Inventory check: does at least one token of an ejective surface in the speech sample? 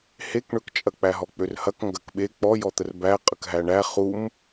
yes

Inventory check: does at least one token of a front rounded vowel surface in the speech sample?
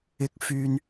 yes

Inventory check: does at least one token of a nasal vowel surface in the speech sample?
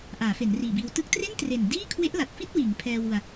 no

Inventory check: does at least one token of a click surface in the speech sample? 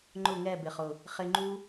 yes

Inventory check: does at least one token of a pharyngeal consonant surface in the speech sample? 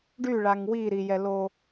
no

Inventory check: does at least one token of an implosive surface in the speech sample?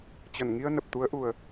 no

